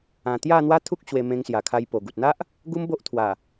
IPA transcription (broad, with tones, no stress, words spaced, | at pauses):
ã˧ t̪ja˥˧n̪wa˦t̪ʰu˦k̚ ɕwe˧mẽ˧ŋsja˨˩ kʰa˧jpo˨˩ɡu˨t̚ n̪a˦ʔ | ɡu˦m bo˦ʔt̪ʰwa˨˩